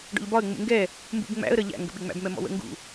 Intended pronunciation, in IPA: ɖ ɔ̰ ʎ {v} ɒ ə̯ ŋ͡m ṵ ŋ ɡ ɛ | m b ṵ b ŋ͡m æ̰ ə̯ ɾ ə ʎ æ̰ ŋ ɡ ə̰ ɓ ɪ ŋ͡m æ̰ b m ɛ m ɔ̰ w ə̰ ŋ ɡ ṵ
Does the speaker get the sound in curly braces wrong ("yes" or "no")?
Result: yes